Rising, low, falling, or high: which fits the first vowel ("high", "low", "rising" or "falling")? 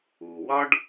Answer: low